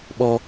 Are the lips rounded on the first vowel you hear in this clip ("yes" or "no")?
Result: yes